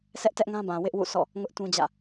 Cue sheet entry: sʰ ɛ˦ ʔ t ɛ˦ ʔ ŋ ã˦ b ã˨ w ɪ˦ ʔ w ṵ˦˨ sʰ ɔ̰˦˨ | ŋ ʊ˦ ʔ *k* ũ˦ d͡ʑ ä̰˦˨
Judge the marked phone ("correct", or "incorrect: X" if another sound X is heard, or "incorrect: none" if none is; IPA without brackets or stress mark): incorrect: t